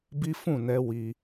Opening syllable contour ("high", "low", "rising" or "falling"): high